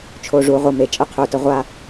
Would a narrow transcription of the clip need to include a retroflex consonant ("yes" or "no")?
yes